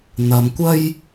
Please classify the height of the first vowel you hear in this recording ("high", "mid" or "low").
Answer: low